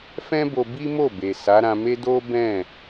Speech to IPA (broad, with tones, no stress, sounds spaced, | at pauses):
f ɛ̃˦ b o˧ b i˦ m o˦˨ b e˨ s a˨˦ ɾ ã˧ m e˦ d o˦ b ɛ̃˦˨